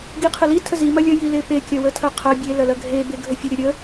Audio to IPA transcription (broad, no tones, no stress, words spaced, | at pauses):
ɡiqʰəlitʰə zi mɐlʲə jilepekʲɐ wətʰɐqʰɐ bʲelɐlɐ ɡʱebe ɡʱəfʲəɾʲɐ ɾʲə